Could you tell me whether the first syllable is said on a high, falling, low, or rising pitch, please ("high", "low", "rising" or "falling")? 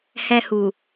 high